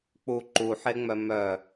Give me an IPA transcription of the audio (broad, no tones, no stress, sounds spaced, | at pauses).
k͡p u ǃ u ħ e ŋ͡m œ m œ